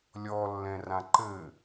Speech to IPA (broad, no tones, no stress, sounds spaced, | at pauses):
lʲ ɔ lː ɛ̃ r ã ǃ ɘ